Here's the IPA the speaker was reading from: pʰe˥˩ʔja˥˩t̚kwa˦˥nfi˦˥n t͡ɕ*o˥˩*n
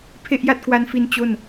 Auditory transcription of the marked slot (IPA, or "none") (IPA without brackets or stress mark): o˥˩